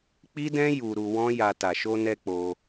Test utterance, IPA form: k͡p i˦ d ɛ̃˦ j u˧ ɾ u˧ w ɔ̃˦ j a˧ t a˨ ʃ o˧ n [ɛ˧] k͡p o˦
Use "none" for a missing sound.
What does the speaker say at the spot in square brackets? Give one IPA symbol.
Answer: ɛ˧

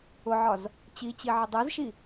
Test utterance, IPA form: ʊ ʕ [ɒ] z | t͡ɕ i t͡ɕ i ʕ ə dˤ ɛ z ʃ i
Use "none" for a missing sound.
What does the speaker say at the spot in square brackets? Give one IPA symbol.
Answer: ɒ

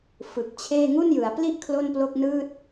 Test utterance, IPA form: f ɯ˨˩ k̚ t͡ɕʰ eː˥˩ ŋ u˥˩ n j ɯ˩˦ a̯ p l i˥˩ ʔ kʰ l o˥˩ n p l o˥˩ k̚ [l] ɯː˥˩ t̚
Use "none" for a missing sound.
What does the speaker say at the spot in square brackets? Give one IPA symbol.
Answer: n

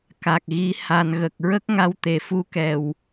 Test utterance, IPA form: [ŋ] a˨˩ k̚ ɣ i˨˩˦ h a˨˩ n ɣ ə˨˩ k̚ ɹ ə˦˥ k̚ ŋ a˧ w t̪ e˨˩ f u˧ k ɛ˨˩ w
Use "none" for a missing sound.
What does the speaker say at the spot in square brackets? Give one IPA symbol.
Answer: k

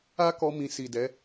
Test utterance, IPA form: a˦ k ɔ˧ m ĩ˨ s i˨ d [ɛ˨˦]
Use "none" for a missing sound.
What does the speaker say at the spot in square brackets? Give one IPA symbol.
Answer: ɛ˨˦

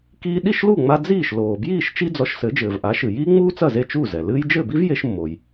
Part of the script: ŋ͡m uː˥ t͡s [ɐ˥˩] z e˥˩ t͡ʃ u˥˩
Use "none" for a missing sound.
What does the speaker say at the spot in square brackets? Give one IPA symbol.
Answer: ɐ˥˩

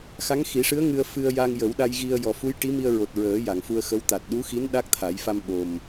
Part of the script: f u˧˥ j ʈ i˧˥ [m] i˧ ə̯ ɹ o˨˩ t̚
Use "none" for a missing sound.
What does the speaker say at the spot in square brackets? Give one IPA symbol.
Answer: m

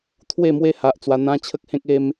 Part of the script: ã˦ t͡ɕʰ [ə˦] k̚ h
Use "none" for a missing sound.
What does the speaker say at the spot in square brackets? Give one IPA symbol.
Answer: ə˦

